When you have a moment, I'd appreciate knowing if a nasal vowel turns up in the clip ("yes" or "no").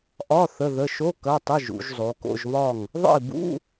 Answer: no